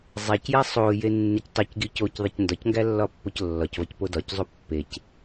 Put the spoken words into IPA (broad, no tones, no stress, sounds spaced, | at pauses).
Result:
zˤ æ c j æ sˤ o j e nː e c tˤ e c ɡ i c o c ðˤ e c n d ɒ c ŋ ɡ æ lː ɒ pː o c lː ɒ c v ɒ c p o d ɒ c zˤ u pː e c